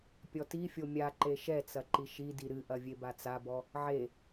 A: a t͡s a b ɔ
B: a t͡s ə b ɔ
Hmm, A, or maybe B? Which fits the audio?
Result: A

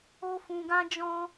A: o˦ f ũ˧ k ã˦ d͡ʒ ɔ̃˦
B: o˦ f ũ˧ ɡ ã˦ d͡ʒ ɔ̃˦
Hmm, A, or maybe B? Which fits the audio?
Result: B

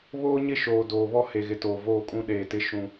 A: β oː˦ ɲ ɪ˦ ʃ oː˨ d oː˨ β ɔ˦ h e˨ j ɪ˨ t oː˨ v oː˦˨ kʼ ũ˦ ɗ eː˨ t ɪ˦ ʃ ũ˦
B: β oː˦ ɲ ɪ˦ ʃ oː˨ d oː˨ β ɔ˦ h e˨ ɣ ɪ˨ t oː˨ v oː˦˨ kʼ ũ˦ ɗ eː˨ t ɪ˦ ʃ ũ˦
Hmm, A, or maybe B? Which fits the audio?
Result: B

